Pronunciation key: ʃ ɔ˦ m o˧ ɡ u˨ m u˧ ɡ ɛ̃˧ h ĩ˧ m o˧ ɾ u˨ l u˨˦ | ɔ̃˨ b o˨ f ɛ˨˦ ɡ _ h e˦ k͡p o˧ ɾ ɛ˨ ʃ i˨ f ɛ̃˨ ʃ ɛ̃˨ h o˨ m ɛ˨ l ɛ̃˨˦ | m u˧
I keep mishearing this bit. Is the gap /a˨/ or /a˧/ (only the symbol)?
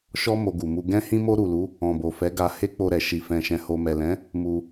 a˧